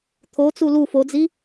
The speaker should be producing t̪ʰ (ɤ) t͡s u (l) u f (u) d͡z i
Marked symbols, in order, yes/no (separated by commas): no, yes, no